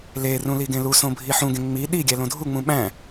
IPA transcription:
lerũ liɡẽlusõ bʱiħũɡẽ ŋ͡mi ɗiɡʲæ lõdʱuŋ͡mũ ɓæ̃

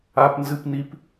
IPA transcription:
a˦pnzɨ˦p ni˦p

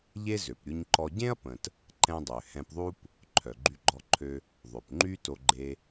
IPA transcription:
ʎe˥zø˩pɾʲu˧ɲǃɔ˧ ɟẽ˥ɐ̯pə̃˩t | ǃɛ̃˧dˤø˩ hɛ̃˧pðˤu˥p | ǃʰœ˩ɡ͡ǃy˧ɡ͡ǃɔ˧ǃʰø˧ | ðˤø˩pŋ͡ǃy˥ to˧ɡ͡ǃe˧

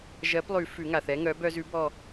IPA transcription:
ʒɜ˨˥plˠʉ˨˩˦ fʉ˨˩˦ŋa˩θɛ˨˥ ŋœ˨˥bœ˦z ʉ˨˥bɔ˦˨

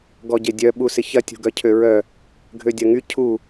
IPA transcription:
ɡɔɟedʲœ ɓusɪçɐ tʲṳɡœcʰøɹœ | ɡʱødʲɐŋy cʰu

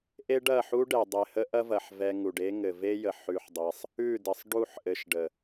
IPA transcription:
ʔe˦ɖɐ˦˨ħu˦ɖɛ˨ dˤe˨ hə˦ʔɐ˦vɐ˨ħ vɛ˧ ŋu˨ɖe˦ ŋɘ˨ve˦jə˨ ħʉ˧ħdˤe˧sˤ | ʉ˦˨dɘ˨sˤ ɖu˦˨ħ ʔɘ˧ʃɖə˨

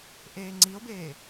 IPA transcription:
ʔeːŋ͡ǀio̯beː

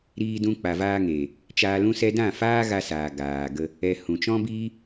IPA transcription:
ɾiː˧dũ˧ k͡pa˨vaː˧ŋeː˨ | t͡ʃaː˧lũ˦sɛ˦ dã˦˨faː˦ɣa˧saː˨ ɡaː˨ ɡə˧ | ɛ˧ hũ˨t͡ʃɔ̃˦biː˦

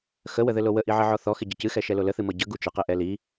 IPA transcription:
xəwəðɘlo wəʔiʕəʕɔ θɔxɪɟɘ cɨxɛʃɛlo ləθɨmɤ ɟəɡu t͡ʃɘqɪʔɛ li

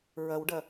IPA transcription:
ɹɐwɖɐ

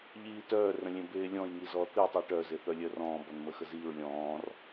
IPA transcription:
ʎiːtœː rə̃lʲẽbeːlʲɔ̃j ŋizɔθi tˤiʈœ zeθœlʲœrɔ̃ː bɔnməxəziːɹ lʲɔ̃ːr

